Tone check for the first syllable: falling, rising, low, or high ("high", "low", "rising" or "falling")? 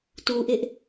low